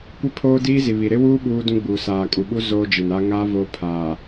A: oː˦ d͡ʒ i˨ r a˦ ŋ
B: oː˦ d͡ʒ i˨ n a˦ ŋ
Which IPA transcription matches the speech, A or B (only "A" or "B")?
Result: B